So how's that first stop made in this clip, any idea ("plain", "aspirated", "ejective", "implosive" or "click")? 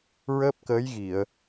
plain